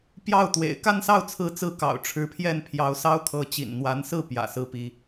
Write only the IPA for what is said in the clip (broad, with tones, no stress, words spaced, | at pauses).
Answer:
pjɑ˥˩ʊ̯t̪wḛ˨˩ɪ̯ ka˥˧nsɑ˥˩ʊ̯t͡sʰɹ̩˧˥t͡sɹ̩˧˥ kɑ̰˨˩ʊ̯ʈ͡ʂʰɻ̩˧˥pʰjɛ˥˩n pʰjɑ˧˥ʊ̯sɑ˥ʊ̯kʰɤ˧˥ t͡ɕḭ˨˩nn̪wa˧˥nsɹ̩˥˩ pjä̰˨˩sɹ̩˥˩pi˧˥